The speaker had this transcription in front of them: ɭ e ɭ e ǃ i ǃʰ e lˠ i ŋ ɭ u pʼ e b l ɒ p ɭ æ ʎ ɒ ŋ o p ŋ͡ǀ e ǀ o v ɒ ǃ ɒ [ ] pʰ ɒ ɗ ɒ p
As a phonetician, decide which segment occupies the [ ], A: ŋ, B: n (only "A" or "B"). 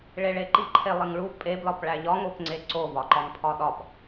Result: A